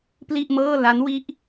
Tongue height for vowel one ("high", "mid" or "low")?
high